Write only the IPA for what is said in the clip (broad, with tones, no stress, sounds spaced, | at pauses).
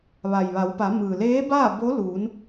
ʋ a˩ j ʋ a˩˧ w p a˩˧ m ɯː˩ l eː˧˥ b aː˥˨ b o˧˥ l uː˩˧ n